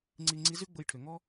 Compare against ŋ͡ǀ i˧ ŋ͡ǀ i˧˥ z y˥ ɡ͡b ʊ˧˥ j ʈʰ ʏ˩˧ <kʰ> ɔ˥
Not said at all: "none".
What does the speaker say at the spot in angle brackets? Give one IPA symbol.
ŋ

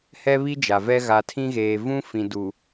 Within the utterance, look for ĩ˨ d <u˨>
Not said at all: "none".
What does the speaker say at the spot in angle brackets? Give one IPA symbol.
u˨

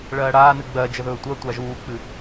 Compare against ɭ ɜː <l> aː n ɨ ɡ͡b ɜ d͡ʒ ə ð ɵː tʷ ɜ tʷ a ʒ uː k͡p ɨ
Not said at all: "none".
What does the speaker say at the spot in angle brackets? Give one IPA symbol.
ɽ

